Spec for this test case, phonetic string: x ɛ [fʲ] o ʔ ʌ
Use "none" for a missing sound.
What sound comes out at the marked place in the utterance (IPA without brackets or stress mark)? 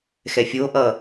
fʲ